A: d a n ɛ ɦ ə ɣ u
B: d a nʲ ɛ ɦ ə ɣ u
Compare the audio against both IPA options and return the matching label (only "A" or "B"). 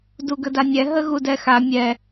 B